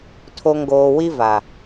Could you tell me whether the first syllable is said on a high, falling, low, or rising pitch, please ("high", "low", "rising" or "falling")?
low